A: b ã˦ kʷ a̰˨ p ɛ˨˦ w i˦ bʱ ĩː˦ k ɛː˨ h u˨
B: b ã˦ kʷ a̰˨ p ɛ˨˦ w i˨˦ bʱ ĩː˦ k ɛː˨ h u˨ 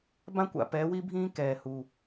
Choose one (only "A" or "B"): A